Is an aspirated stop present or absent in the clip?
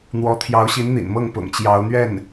present